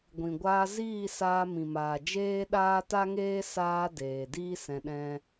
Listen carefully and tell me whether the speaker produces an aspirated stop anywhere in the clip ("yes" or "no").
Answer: no